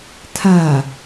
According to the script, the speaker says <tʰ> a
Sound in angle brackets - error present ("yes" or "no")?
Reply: no